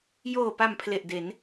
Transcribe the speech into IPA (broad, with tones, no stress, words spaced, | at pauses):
joː˨˩pa˨˩m pʰle˨˩ʔde˩˦n